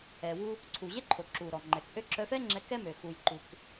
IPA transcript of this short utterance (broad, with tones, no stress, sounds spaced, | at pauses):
ɛ˩ w u˧ | ǀʰ u˩ ʑ ɛ˥ ǃʰ o˩ ǁ u˩ ɾ ɔ˩ ŋ͡ǃ ɛ˩ k ʔ ø˥ ǁ œ˧ f ɛ˥ ŋ͡ǁ ɛ˧ k ɛ˥ m ø˩ x u˩ j ǃ u˩ k